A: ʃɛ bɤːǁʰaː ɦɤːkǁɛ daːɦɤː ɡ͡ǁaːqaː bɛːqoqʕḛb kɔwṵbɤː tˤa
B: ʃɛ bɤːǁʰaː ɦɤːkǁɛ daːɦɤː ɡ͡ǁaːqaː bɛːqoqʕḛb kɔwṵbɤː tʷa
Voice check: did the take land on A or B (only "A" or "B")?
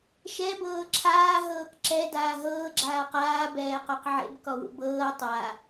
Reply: A